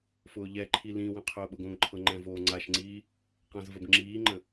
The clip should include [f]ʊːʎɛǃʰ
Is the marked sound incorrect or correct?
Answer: correct